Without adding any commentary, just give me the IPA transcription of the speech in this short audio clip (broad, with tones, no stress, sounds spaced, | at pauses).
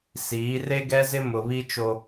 s iː˨˦ r e˦ ɡ ɛ˦ z ɪ˦ m ʊ˨ β i˦ t͡ʃ o˦